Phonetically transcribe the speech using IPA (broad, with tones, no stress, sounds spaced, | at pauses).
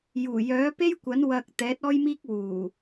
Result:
j uː˨˩ j œː˨˥ p e˥ j kʷ ɐ˨˥ n w ɐ˧ k̚ t̪ ɛː˨˥ t̚ ɔː˥ j m iː˥ k̚ w uː˨˩